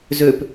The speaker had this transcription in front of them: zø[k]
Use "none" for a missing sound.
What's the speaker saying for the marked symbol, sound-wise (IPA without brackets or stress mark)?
p